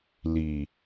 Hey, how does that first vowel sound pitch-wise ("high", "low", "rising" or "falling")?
low